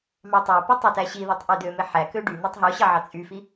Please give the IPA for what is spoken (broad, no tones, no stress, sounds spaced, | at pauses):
m ɑ tˤ æ p y tˤ ɑ t æ ɕ i ð o tˤ ʔ ø d ø m e ħ æ k ø ɖ y n̪ ɑ tˤ ɦ o ɕ ɑ ʕ ɑ t͡sʼ y f i